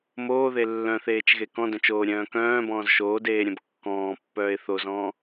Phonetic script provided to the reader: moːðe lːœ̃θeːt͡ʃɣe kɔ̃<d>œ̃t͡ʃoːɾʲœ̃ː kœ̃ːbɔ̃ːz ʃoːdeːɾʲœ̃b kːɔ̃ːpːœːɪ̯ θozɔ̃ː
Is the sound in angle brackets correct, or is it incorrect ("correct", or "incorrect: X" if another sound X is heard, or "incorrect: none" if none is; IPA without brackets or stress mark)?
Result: correct